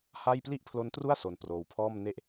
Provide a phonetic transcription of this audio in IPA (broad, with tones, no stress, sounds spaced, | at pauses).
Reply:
h a˥˩ j p l i˥˩ ʔ pʰ l o˦˥ n t r u˥˩ a̯ s o˧ n p r oː˧ w pʰ ɔː˥˩ m n e˦˥ ʔ